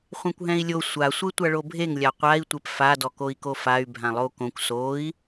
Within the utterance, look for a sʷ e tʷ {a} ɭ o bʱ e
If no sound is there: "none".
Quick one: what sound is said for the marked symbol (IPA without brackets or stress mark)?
a